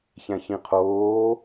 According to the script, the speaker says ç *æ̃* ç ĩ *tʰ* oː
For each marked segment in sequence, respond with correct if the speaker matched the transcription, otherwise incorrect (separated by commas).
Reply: correct, incorrect